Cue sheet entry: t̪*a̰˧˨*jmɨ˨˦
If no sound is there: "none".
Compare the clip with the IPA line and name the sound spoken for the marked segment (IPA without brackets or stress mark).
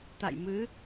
a̰˧˨